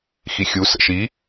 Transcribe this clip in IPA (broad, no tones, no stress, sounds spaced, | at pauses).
x i xʲ u s ə̰ ʃ i